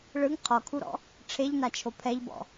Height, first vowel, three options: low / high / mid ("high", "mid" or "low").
high